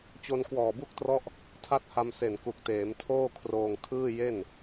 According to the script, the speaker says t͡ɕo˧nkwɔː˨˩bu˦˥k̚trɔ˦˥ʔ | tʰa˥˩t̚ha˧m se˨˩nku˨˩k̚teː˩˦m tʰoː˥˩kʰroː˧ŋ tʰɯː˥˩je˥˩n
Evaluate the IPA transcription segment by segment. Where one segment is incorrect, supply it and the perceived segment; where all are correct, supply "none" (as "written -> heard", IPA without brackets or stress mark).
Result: none